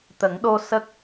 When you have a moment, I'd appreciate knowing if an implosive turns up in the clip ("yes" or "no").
yes